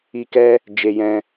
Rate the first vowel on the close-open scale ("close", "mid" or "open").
close